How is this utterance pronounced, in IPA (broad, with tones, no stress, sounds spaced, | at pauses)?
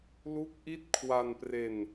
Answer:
l u˦˥ k̚ ʔ i˦˥ t̚ kʰ w a˧ n p r e˧ n